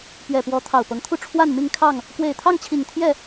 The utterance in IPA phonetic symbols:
p ɥ ɛ˨˩ p w ɔ˨˦ t̪ʰ ɑ˨˩ ʊ̯ p ɤ˨˦ ŋ t̪ʰ u˥˨ ʈ͡ʂʰ w a˥˨ n m i˥˨ ŋ kʰ ɑ˥˨ ŋ | k w e˨˩ ɪ̯ t̪ʰ ɑ˥˨ ŋ t͡ɕʰ i˨˩ ŋ t̪ʰ j ɛ˥˨

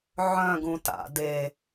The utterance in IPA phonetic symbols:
ʕ œ̃ ɡ ũ t a̰ d e

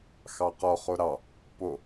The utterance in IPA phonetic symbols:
x ɑ q ɔ χ o ɾ ɑ | p o

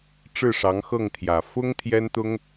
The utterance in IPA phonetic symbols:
ʈ͡ʂ ɻ̩˥˩ ʂ ɑ˧˥ ŋ x ɤ˥˩ ŋ t̪ʰ j ä˨˩ f ʊ˥ ŋ t̪ʰ j ɛ˥ n t̪ ʊ˥ ŋ

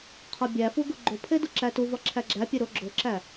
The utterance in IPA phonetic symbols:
qʰ ɒ bʲ æ f u ɡ u ɡ͡ǃ o pʰ e d u ǁ æ t u v ɒ ǁʰ æ ɡ͡ǁ æ pʲ e ɾ o ɡ͡ǁ o ǁ æ

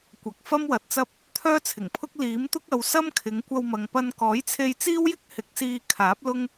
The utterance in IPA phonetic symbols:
kʷ ɐ˨ k̚ f ɐ˥ m w ɐ˨ t̚ t͡s ɐ˥ p̚ | t̪ʰ œː˥ t͡sʰ ɪ˨˩ ŋ pʰ ʊ˥ k̚ l iː˨˥ m t̪ ʊ˥ k̚ ɐ˨˧ w s ɐ˥ m kʰ ɪ˨˧ ŋ kʷ ɐ˧ w m ɐ˨ ŋ p ɐ˧ n k ɔː˨˥ j t͡sʰ e˧ j t͡s iː˥ w j ɪ˥ k̚ h ɪ˨˥ k̚ s iː˧ kʰ aː˨˥ p̚ l ʊ˥ ŋ

